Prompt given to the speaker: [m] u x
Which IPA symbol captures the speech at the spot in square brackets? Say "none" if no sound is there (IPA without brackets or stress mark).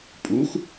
pʼ